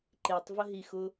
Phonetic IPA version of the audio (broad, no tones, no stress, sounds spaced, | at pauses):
ǃ e tˤ v ə ɦ i x ʊ